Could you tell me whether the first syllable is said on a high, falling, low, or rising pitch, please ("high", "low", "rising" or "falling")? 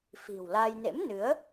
low